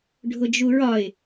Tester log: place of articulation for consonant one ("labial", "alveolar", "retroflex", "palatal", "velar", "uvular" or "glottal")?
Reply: retroflex